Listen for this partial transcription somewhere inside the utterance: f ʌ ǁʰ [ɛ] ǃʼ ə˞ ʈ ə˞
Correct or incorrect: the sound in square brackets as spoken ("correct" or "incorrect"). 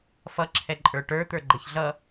correct